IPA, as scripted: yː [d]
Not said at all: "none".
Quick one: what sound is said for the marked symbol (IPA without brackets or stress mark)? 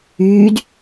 d